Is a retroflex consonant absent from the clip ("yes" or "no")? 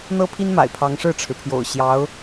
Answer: no